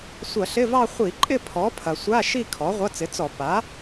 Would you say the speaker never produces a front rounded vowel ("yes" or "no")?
yes